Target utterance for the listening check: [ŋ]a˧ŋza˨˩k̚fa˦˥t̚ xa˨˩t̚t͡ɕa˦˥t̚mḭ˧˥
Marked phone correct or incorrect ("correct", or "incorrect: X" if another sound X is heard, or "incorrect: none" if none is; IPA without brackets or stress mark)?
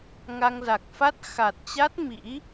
correct